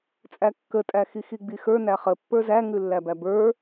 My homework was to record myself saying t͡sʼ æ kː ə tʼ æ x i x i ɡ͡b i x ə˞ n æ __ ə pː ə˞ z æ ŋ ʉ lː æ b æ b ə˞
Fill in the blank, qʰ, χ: χ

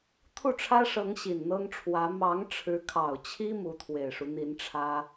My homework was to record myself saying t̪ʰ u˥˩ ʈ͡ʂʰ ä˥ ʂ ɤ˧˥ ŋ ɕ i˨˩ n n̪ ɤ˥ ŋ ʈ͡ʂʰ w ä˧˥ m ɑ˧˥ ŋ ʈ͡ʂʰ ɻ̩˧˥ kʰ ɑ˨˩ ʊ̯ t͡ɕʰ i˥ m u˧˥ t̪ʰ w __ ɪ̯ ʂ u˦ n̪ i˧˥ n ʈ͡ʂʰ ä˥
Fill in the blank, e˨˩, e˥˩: e˨˩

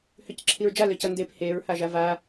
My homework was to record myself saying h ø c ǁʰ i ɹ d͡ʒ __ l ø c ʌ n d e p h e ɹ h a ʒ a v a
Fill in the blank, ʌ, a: a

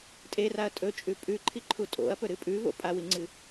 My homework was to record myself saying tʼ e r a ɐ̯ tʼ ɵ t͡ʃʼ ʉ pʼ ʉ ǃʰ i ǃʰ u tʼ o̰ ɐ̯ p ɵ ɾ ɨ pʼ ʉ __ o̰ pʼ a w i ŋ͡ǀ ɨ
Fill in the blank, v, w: v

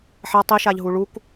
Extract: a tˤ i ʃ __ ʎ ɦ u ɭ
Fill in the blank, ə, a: a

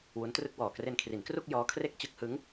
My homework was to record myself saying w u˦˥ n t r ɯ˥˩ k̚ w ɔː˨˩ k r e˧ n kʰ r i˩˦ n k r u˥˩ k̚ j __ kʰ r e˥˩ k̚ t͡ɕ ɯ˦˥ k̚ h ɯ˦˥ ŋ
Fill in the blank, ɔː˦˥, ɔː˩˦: ɔː˦˥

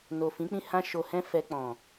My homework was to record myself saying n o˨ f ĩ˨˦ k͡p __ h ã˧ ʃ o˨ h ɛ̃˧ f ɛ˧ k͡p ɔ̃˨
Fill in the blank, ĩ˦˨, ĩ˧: ĩ˦˨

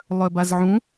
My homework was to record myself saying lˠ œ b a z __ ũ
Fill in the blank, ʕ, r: ʕ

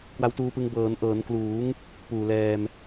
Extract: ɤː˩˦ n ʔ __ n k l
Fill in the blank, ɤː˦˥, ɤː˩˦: ɤː˩˦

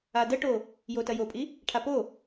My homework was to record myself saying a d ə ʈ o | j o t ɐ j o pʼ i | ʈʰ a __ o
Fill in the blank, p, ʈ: p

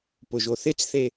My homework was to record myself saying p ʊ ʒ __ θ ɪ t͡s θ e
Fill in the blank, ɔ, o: o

